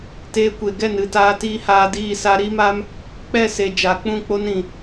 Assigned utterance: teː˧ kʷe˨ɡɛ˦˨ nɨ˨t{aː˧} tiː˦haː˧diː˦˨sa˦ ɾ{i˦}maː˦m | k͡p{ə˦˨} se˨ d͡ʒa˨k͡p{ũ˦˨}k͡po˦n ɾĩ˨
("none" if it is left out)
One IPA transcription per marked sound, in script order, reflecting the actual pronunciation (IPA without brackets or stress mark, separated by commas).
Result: aː˧, i˦, ɛ˦˨, ũ˦˨